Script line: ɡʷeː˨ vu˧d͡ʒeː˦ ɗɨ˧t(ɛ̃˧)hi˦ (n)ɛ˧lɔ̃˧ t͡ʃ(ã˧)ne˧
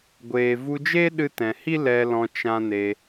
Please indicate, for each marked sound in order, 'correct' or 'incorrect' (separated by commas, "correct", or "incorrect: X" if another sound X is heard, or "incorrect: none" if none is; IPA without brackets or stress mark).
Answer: incorrect: ɛ̃˨, incorrect: l, correct